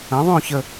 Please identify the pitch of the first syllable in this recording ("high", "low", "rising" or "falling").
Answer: rising